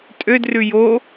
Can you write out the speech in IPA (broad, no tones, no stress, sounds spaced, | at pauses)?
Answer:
tʼ ø d r ʉ j o